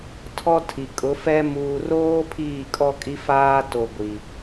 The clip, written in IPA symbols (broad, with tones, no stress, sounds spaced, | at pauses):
tʰ ɔ˦ tʰ i˨ kʼ ʊ˨˦ f ɛ˦ m uː˨ r oː˦ pʰ iː˦˨ kʼ ɔ˦ kʼ i˦ f aː˦ t o˨ ɡʷ i˨